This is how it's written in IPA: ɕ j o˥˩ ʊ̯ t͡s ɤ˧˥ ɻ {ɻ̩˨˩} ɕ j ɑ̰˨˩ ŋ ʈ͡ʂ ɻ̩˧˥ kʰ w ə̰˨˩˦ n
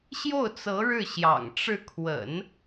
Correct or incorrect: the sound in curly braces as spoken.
incorrect: ɻ̩˥˩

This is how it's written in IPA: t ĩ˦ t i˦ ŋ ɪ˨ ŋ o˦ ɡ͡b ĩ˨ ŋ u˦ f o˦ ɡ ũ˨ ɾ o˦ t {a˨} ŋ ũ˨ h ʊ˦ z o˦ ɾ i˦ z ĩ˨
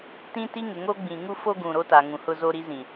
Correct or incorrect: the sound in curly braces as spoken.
correct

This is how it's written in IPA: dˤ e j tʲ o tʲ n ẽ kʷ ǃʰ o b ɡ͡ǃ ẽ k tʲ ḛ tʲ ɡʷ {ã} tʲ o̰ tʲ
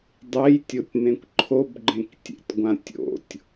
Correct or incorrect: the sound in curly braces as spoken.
correct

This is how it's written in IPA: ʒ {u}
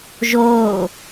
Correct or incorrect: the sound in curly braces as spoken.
incorrect: o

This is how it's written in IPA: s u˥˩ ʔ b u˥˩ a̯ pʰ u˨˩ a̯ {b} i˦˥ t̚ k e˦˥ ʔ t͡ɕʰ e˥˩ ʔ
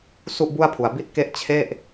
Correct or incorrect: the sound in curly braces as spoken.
correct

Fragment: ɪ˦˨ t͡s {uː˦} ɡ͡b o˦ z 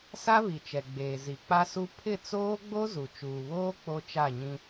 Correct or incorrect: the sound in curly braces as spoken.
incorrect: oː˦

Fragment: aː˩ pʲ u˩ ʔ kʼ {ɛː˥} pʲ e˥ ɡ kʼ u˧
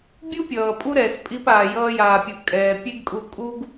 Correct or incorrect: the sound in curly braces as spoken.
incorrect: ɛː˩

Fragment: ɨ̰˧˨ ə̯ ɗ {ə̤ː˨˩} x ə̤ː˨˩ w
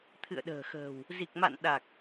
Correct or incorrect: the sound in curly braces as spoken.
correct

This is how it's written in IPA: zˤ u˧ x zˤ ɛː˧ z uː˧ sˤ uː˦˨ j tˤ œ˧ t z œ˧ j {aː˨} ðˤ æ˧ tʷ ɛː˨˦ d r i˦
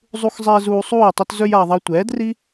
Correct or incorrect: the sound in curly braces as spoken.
correct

